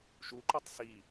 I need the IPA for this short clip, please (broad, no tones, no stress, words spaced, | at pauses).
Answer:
ʃuǃutˤ si